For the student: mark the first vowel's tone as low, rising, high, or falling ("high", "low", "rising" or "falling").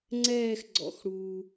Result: falling